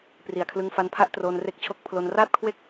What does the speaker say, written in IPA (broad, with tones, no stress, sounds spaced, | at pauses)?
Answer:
p r i˨˩ a̯ kʰ l ɯ˧ ŋ f a˧ n pʰ a˦˥ ʔ t r oː˧ n r e˦˥ k̚ t͡ɕʰ o˦˥ k̚ pʰ l o˧ n r aː˥˩ t̚ kʰ w e˥˩ k̚